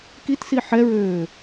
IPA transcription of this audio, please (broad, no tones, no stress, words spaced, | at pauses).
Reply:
kitsi ħɛɹøː